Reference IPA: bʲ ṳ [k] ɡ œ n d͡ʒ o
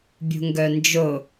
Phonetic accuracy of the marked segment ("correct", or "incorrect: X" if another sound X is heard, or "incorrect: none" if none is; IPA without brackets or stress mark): incorrect: ŋ